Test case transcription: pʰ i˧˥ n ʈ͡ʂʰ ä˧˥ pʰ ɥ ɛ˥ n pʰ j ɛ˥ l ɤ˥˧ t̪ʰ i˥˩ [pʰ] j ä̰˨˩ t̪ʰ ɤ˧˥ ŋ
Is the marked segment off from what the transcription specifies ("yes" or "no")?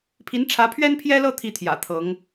yes